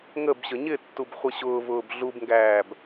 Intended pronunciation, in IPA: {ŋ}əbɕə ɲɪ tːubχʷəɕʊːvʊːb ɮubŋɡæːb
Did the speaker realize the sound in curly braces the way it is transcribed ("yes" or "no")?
yes